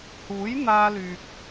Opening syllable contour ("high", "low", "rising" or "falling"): rising